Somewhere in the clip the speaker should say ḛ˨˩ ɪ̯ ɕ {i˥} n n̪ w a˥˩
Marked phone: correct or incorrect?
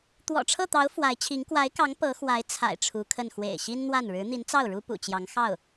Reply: correct